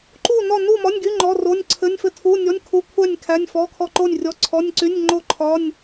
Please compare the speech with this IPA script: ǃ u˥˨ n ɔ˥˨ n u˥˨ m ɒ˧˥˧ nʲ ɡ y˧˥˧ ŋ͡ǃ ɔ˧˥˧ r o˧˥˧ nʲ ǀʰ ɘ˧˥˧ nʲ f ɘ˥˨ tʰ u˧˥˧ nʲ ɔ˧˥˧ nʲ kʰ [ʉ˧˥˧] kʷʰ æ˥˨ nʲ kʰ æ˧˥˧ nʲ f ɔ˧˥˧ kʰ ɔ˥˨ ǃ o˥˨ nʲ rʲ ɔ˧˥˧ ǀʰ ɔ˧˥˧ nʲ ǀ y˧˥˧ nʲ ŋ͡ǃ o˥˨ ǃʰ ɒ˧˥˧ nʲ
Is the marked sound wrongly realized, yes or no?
yes